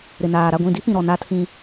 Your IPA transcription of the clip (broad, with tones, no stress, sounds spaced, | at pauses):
ɾ ɪ˨ n aː˨ ɾ a˦˨ ɡʷ ĩ˦˨ d i˦ p ĩ˨ ɾ ɔ˨ n a˦ tʰ ĩ˦